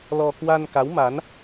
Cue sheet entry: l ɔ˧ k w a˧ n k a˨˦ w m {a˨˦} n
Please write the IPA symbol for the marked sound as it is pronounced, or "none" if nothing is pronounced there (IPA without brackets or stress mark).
a˨˦